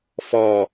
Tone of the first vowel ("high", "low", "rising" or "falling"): low